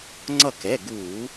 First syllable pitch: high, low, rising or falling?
falling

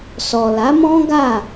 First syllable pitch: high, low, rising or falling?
low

